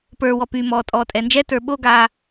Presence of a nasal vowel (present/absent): absent